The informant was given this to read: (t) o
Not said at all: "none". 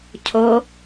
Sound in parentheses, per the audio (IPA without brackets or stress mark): cʰ